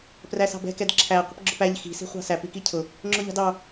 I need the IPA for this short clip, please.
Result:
p r æ s ɑ̤ b ɛ̤ k ɛ d ǁʰ æ qʷ ə̤ p ɡ͡ǁ ʊ p æ ʎ x i̤ s i̤ χʷ ɑ̤ s æ p i k i cʰ ʊ | ŋ͡ǁ ʊ ʎ ɑ̤ d ɑ

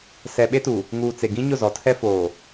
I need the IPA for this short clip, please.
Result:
s ɛ˨ ɓ e˦ t u˨ | ŋ uː˨ t͡s e˨ ɡ ĩ˦ ɲ ʊ˦˨ z ɔ˨ tʰ ɛ˦ f oː˨

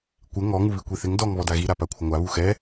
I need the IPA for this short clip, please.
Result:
kʷ ɪ ŋ ɔ ŋ u β i kʷ i θ ɪ ŋ d ɔ ŋ β ɔ d a ɣ i ɾ a p a kʷʰ ɪ ŋʷ a β u x ɛ

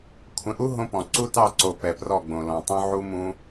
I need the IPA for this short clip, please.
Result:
kʷʰ ə̃˨ ʔ u˦ ɦ õ˦ p ɔ̃˨ ǀ u˦ t ɑ˦˨ ǀ o˨ p ɛ˨ p r ɔ˦˨ ɡ͡b õ˨ l ɔ̃˨ tˤ õ˦ ʕ u˦ m ũ˦

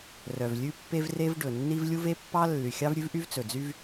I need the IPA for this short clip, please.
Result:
r œ˩ v lʲ ʉ˥ pː e˥ v r e˥ v ɖ ɵ˩ nː i˥ v lʲ u˥ v e˥ pː ɑ˥ lː y˩ xʲ ɑ˥ v ɾʲ ʉ˥ v ʔ y˥ v t͡s ɵ˩ d͡z y˥ v

